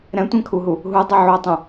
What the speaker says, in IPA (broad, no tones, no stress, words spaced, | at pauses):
ɾɛ̃tʷɛ̃kʰuɦu | ɦudˤe ʕotˤũ